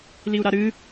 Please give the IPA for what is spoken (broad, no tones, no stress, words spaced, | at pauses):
liu̯ɾaɾɨ